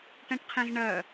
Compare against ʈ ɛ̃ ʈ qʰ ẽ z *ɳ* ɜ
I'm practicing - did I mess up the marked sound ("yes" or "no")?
no